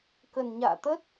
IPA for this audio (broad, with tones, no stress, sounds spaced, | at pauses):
k ə˨˩ n ɲ a̰ː˧˨ t̪ ə˦˥ t̚